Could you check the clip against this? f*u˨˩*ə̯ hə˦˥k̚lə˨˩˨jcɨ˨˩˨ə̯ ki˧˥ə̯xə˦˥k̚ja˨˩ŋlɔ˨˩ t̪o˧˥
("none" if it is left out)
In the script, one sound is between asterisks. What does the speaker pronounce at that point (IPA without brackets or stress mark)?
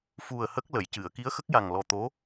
u˨˩